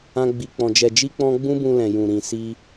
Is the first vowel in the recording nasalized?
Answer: yes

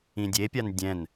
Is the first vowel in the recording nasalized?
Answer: yes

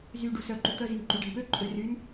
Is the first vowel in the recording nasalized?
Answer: no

